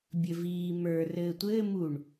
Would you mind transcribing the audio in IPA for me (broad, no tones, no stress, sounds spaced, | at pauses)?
bʲ ɘ v iː m ə˞ r ɘː tʷ ɘː m u ɳ